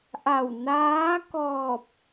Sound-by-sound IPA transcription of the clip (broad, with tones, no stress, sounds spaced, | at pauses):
ʔ a˧˩ w n aː˧˥ k ɔː˧˩ p̚